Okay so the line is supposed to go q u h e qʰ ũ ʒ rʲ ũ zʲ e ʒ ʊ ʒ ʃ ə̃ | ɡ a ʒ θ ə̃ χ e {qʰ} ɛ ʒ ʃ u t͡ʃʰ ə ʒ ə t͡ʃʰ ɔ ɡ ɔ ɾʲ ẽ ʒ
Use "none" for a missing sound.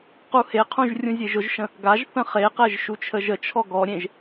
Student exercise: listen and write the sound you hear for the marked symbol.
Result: q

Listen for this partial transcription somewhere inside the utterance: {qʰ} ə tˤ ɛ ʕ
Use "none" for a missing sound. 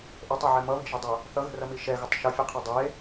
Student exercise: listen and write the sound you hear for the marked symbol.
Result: ʔ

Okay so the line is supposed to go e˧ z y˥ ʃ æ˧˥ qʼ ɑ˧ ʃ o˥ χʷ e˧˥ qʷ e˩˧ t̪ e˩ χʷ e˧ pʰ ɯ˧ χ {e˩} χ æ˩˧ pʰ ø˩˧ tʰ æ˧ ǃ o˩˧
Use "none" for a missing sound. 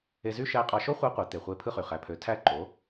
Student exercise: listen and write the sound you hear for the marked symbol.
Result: y˩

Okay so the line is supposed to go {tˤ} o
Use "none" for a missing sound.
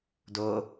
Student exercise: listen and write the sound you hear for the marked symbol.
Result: d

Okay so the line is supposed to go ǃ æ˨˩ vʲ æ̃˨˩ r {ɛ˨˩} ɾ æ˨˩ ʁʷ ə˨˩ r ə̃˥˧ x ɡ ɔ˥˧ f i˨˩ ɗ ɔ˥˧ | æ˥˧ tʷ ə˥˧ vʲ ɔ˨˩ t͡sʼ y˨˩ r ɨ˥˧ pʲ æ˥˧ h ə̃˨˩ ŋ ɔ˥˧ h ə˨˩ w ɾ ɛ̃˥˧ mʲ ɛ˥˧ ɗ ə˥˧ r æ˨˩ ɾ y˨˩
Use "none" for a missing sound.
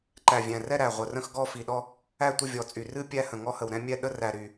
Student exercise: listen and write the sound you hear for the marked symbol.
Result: ɛ˥˧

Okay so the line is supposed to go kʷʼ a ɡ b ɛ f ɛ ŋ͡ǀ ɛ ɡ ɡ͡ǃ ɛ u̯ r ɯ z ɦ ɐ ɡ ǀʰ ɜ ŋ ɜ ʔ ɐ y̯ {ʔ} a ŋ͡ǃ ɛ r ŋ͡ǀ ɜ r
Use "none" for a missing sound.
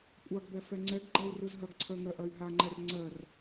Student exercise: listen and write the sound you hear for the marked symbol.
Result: ɦ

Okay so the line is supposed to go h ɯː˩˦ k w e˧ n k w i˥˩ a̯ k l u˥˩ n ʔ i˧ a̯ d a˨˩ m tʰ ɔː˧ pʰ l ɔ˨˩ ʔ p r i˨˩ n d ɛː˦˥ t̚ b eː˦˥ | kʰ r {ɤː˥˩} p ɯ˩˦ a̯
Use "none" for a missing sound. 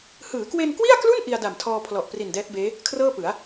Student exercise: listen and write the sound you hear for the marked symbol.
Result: ɤː˥˩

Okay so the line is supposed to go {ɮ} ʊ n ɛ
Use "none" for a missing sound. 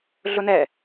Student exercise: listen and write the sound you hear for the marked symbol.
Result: ɮ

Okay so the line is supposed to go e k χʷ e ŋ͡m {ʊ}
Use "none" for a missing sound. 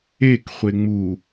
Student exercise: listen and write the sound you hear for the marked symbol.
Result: u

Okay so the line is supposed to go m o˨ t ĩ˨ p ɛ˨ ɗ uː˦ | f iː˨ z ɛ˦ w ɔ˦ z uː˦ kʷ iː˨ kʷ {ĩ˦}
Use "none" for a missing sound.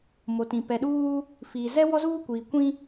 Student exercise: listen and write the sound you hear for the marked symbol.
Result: ĩ˦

